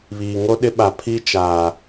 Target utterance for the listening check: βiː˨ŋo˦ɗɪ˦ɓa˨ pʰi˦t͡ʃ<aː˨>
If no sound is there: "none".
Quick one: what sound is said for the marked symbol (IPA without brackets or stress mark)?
aː˨